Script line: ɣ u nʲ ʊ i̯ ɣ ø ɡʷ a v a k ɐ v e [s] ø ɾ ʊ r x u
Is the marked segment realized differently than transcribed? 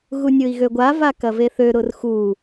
yes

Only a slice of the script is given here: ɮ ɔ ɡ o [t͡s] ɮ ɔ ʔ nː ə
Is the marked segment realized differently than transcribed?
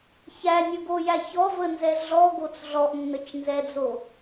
no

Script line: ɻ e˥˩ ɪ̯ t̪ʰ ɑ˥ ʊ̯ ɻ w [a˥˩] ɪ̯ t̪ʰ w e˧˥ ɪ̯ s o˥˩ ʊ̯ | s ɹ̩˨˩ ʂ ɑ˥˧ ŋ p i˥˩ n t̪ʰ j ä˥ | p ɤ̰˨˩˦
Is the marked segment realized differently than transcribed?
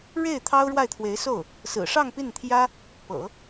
no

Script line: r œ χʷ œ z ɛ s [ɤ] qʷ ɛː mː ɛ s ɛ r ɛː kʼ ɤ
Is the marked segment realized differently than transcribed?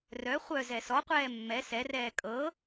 yes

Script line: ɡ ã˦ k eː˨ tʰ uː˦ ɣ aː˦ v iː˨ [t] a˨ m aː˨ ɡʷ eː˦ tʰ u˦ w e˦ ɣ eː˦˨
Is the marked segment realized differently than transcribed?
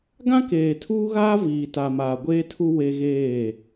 no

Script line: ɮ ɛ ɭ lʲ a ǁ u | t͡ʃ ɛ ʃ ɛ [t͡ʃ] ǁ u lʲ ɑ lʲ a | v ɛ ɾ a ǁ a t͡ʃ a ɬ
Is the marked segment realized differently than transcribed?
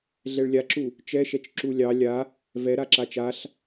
no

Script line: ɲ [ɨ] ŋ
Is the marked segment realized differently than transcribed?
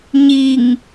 yes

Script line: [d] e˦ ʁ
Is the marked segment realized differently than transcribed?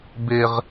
yes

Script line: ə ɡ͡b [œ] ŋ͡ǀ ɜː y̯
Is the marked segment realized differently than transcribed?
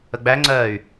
yes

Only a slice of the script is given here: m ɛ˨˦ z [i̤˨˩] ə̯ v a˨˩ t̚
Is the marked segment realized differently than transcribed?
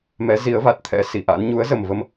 yes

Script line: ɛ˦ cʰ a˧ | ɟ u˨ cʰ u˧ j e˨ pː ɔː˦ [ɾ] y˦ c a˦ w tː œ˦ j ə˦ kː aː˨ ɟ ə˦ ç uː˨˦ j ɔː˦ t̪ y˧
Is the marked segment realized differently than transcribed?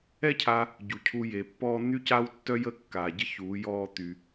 yes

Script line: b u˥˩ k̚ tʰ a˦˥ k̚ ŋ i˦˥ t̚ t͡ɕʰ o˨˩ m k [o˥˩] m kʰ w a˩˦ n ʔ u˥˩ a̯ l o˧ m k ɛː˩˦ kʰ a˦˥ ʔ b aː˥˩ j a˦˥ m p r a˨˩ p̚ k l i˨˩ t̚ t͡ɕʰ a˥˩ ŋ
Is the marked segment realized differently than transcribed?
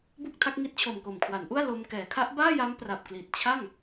yes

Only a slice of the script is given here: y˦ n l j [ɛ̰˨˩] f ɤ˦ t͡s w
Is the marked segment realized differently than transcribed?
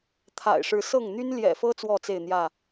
no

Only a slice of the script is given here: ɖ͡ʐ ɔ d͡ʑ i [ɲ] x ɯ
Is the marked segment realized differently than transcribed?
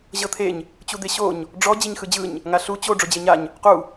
no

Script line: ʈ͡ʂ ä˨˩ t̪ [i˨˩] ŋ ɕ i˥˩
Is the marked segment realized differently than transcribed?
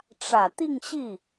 yes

